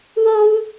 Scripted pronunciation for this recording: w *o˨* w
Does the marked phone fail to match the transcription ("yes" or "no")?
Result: yes